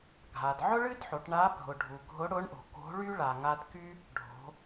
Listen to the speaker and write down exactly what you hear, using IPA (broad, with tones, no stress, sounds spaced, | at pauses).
ɡʱ a˩ d ʕ ʊ˥ ɭ ɨ˥ d ħ o˩˧ ʈ ɳ a˧˥ bʱ ʊ˩ ɖʱ u˩ ɡʱ ʊ˧˥ ɽ ʊ˧˥ ɳ ʔ o̤˩ k o̤˧˥ ɭ y˥ ɭ a˩ ŋ a˧ d k y˥ | ɖʱ o̤˩˧